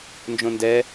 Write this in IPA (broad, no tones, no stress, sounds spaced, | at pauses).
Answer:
n d͡ʒ õ n d ɛ